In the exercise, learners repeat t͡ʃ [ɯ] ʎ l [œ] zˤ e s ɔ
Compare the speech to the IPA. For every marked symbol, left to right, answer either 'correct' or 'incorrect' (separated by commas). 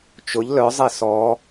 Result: incorrect, correct